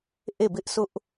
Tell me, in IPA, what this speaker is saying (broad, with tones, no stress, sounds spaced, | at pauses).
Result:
ʔ e˦˨ b ɪ˦ ʔ sʰ ʊ˦ ʔ